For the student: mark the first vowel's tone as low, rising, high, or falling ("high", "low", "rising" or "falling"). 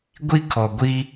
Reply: high